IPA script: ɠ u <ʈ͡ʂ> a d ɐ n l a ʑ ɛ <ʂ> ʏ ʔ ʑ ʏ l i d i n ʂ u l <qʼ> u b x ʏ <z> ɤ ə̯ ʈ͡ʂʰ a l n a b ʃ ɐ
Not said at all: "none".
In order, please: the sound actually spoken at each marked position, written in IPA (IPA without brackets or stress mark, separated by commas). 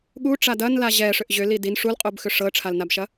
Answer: ʈ͡ʂ, ʂ, qʼ, ʂ